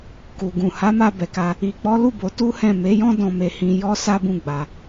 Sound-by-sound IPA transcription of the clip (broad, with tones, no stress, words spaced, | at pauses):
ku˨ɡũ˨ha˨˦ ma˧bɛ˨ka˧ | i˨k͡pɔ˨˦lu˦˨ bo˨˦tu˦hɛ̃˦˨ me˨˦jɔ̃˦ dɔ̃˧me˧hĩ˧ jɔ˦ sa˦bũ˦˨ɡ͡ba˧